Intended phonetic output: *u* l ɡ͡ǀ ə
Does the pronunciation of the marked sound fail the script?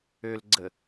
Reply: yes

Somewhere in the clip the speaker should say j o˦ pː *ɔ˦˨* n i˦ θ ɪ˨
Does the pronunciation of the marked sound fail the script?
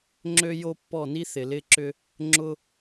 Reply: no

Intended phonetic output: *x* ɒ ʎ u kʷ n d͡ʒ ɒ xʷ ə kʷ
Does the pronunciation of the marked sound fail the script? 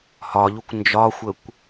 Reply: yes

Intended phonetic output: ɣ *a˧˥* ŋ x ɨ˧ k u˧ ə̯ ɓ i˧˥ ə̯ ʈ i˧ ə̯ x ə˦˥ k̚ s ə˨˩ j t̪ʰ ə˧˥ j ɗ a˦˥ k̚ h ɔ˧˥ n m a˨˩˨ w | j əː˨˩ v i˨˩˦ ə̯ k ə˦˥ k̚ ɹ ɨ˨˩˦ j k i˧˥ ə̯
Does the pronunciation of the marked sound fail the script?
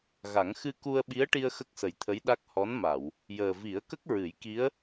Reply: yes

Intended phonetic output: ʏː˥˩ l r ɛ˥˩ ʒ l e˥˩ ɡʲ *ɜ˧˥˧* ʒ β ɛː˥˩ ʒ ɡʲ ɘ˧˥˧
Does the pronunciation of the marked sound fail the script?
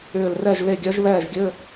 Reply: yes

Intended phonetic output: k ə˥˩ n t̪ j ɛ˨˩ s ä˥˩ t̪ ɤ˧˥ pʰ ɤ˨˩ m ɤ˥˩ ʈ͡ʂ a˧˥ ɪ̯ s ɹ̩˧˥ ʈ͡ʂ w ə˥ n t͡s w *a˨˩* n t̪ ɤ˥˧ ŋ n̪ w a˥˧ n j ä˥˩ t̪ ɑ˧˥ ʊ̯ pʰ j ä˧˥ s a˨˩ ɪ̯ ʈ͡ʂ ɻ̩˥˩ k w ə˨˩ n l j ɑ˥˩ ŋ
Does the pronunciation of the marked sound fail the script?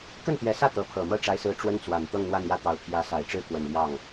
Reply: no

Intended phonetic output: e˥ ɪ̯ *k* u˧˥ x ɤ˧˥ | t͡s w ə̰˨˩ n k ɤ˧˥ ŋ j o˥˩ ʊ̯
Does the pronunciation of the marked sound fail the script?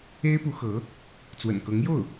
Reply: yes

